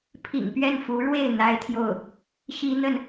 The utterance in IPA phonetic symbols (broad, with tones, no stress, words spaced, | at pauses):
pʰḭ˨˩ŋpɥɛ˥˩n fu˧˥ɻwe˥˩ɪ̯ n̪a˥ɪ̯t̪ʰjo˥˩ʊ̯ | ɕi˥n̪ə˥˩n